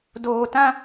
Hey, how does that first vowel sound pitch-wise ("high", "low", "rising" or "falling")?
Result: low